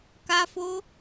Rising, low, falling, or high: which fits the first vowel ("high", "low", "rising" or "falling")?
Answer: high